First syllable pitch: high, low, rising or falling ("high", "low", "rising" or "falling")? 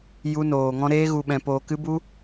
high